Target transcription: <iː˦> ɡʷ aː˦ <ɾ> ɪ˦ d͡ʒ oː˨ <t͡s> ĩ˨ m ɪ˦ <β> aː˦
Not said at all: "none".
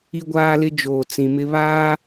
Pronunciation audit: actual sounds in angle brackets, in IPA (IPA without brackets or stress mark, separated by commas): i˦, l, t͡s, β